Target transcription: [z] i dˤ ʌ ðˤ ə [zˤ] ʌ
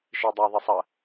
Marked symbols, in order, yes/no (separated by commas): no, no